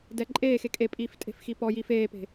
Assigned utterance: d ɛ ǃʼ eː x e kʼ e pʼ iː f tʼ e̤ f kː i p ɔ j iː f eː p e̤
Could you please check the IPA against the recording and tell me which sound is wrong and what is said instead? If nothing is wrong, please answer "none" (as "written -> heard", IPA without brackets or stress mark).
kː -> x